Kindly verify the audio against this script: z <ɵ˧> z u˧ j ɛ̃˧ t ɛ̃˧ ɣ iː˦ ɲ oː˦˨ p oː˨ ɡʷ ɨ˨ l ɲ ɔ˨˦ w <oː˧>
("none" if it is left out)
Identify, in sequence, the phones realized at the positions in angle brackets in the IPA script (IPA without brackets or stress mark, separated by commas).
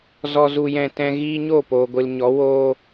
ɔ˧, oː˦